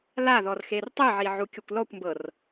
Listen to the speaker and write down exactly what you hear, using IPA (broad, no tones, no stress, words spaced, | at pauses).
laðɔr xertˤɨʕi ʕukʲokʷlɔkʷmbɤr